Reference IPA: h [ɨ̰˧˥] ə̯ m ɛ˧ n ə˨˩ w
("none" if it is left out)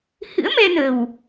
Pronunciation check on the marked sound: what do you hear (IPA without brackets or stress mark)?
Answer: ɨ̰˧˥